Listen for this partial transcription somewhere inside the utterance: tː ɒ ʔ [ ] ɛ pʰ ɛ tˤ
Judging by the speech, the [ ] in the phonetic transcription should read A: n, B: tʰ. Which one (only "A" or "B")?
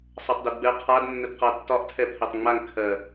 B